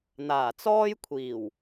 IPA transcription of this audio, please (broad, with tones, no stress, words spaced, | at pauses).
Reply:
n̪aː˨˩t͡sɔː˥j kʷʰiː˨˩w